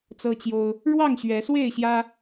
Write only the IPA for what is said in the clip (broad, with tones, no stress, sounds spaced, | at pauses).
t͡s ɤ˦ t͡ɕ j o˦ ʊ̯ | ɻ w ɑ˥˨ ŋ ɕ ɥ ɛ˨˦ s w e˥˨ ɪ̯ ɕ j ä˦